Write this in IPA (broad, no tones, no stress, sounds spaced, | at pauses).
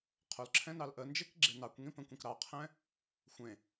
qʰ o l ǁʰ ɛ̃ n ɑ l ʔ ə n d͡ʒ e k ɡ͡ǁ e n ɑ kʷ ŋ ĩ p ə̃ kʷ ẽ k ɾ ɑ qʰ ɛ̃ | xʷ ẽ